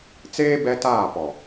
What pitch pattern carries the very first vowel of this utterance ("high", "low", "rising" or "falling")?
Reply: high